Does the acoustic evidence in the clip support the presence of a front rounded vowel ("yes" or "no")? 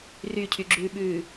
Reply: yes